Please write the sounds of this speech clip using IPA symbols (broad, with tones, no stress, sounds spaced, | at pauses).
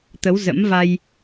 t̪ ə˨˦ w z ə̰˧˥ m v a˧ j